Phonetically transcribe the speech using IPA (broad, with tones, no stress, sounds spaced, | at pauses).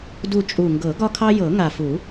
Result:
d u˦˨ t͡ʃʼ u˨˩ ŋ ɡ ɤ˨˩˦ ɡ ɒ˦ kʰ ɑ˦ j ɤ˨˩˦ ŋ a˨˩ f u˨˩˦